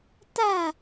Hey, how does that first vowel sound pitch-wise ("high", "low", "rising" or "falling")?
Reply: falling